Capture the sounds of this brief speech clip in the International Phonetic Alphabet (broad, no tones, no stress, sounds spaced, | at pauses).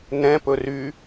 n ɛ̃ p ɵ r y